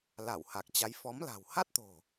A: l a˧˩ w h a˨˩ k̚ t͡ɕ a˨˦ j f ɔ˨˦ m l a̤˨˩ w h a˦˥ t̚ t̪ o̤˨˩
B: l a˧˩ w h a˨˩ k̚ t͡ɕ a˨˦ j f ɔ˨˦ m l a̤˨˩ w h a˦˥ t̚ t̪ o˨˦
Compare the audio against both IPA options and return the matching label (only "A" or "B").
A